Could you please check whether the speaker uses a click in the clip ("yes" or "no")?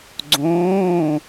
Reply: yes